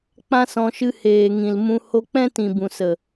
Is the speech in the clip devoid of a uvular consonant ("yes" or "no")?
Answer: yes